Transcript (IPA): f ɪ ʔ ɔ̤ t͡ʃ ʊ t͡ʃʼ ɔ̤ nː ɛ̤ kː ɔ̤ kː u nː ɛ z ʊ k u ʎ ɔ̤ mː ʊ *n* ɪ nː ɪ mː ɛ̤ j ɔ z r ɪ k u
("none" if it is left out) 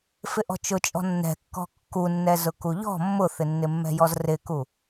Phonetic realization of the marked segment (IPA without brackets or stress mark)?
θ